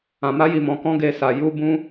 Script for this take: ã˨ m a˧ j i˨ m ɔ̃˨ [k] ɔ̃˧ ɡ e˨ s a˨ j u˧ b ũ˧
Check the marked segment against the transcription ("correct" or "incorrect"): correct